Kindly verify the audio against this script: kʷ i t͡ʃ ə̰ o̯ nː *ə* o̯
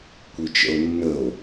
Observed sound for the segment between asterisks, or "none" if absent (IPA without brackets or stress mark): ə